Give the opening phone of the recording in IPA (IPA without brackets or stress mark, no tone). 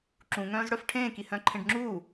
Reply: ǁ